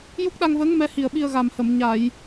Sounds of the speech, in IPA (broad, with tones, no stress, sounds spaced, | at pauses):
j u˦˥ k̚ ɗ a˧ ŋ v əː˧˥ ŋ m ɛ˧˥ h i˨˩ ə̯ ɓ i˧ ə̯ ɣ a˨˩ m h ə˨˩˨ m ɲ a˨˩˨ j